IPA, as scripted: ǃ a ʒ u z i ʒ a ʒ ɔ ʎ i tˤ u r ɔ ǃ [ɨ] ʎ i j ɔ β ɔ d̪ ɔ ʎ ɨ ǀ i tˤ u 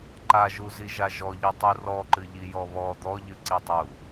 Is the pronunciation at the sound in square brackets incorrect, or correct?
correct